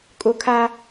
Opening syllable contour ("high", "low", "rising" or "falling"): high